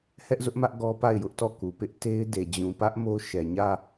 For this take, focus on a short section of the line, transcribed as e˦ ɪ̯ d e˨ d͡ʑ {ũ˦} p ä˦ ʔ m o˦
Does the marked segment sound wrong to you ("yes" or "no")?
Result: yes